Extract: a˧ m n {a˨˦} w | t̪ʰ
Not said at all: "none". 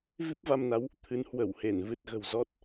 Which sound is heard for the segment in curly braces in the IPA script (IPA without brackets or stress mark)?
a˨˦